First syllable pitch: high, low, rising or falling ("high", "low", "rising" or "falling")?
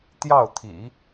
falling